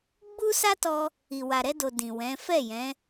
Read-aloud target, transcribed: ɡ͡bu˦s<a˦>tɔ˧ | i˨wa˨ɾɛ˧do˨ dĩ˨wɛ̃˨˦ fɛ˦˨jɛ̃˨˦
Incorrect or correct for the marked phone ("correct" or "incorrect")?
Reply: correct